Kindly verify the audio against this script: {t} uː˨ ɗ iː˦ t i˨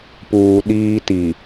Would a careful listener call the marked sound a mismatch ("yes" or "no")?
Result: yes